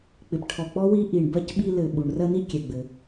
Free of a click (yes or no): yes